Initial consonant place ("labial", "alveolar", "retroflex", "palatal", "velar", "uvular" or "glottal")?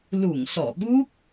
alveolar